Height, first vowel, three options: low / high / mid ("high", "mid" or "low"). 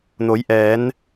mid